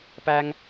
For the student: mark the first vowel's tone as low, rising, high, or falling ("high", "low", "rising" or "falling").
high